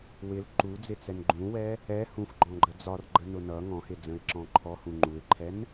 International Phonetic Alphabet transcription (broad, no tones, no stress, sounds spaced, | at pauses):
w ɪ l ǃ u d͡z ɪ t͡s ɛ n ɡ͡ǃ ũ w ɛ | ɛ h ũ f ɡ͡ǃ ɔ̃ ɡ͡ǃ ə d͡z ɒ r ɡ͡ǃ ə n ʊ n ʌ ŋ ɔ̃ h ɪ d͡z ə̃ ɪ̯ ǁ ɔ̃ ǃʰ ɔ h ũ ŋ͡ǃ u ɪ̯ ǃʰ ɛ n